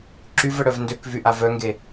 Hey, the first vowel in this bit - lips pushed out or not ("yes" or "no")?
yes